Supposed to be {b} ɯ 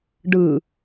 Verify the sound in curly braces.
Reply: incorrect: ɖ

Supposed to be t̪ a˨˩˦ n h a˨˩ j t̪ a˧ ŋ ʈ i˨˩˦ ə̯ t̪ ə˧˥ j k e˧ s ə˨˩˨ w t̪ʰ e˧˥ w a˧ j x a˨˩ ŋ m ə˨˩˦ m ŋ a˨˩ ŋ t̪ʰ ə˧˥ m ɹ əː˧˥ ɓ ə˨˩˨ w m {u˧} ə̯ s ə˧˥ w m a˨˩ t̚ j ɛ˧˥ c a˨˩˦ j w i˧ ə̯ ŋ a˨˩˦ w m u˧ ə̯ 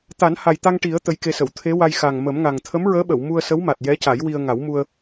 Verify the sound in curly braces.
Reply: correct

